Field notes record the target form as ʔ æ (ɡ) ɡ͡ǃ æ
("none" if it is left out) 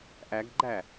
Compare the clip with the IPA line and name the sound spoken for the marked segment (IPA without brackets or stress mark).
ɡ